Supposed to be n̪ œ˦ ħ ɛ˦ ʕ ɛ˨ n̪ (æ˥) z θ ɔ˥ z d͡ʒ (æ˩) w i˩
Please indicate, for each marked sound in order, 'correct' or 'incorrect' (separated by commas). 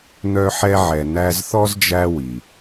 correct, incorrect